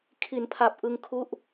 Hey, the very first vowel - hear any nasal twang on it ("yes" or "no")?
no